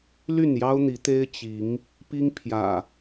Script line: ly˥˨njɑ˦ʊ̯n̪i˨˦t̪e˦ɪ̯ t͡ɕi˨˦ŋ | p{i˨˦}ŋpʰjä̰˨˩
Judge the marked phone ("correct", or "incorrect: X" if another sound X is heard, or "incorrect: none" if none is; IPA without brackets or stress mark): incorrect: i˦